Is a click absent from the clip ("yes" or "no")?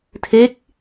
yes